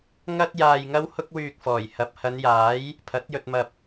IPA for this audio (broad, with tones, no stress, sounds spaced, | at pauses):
ŋ ɐ˥ t̚ j aː˧ j ŋ ɐ˥ w h ʊ˥ k̚ w yː˧ k̚ f ɔː˨˩ j h ɐ˨ p̚ h ɐ˨˧ n j aː˨˥ j | pʰ ɐ˨˥ t̚ j ɵ˧ t̚ m ɐ˧ p̚